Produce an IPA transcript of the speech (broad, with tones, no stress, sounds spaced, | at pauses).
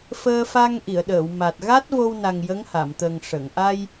f əː˧ f a˧ ŋ ʔ i˨˩˨ ə̯ ɗ əː˨˩˨ w m a˨˩ t̚ ɣ a˦˥ t̚ v o˧ w n a˨˩ ŋ j ə˧˥ ŋ h a˨˩˨ m t̪ ə˨˩ ŋ ʂ ə˨˩˨ ŋ ʔ a˧ j